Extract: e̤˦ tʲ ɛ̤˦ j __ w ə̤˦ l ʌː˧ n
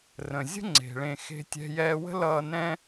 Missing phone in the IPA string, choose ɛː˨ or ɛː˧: ɛː˧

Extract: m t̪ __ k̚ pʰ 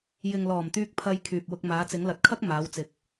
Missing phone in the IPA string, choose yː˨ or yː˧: yː˧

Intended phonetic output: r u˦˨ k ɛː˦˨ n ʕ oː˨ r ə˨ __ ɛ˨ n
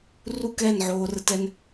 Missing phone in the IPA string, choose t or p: t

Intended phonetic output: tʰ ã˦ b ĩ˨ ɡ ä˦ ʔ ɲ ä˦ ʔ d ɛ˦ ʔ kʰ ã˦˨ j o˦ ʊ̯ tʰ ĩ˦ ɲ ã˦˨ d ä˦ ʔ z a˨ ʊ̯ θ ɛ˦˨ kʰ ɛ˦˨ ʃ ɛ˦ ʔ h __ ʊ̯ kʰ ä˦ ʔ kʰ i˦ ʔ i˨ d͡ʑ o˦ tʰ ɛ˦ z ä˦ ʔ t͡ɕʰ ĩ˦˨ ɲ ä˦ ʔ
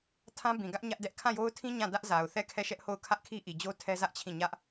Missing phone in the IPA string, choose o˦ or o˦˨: o˦˨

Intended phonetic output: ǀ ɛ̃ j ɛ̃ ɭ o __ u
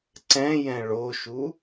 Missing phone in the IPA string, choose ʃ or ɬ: ʃ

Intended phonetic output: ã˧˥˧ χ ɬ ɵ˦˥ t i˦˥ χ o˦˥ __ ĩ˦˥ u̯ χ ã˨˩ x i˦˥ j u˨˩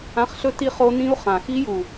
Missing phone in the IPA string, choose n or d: n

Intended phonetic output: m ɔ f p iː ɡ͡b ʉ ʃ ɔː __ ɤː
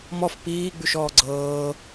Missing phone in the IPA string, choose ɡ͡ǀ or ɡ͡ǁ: ɡ͡ǀ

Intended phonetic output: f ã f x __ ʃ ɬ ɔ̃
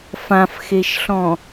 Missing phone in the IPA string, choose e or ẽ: e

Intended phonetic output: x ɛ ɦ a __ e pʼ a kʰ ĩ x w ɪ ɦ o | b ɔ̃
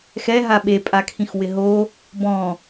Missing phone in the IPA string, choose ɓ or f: ɓ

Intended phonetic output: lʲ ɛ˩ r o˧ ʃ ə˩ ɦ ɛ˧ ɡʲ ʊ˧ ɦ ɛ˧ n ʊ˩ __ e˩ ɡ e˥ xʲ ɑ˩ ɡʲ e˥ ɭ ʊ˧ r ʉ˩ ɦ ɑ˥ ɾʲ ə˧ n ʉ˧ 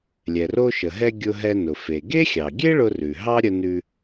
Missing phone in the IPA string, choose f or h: f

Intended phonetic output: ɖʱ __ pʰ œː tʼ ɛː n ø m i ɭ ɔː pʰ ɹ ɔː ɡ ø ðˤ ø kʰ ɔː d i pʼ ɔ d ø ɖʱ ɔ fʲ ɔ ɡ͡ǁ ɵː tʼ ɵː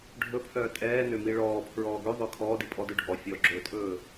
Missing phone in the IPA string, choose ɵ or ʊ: ɵ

